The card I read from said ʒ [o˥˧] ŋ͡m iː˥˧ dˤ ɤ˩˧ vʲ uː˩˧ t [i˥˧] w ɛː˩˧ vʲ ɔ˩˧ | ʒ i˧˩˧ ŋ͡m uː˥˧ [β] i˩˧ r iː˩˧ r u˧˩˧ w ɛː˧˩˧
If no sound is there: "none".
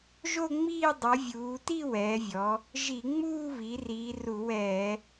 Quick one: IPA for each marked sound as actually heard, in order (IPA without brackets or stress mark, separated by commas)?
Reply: o˥˧, i˥˧, β